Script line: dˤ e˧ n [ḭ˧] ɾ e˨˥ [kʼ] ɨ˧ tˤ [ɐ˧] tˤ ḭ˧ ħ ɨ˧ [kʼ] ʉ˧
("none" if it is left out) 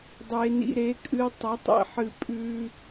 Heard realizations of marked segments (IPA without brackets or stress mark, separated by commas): ḭ˧, kʼ, ɐ˨˥, pʼ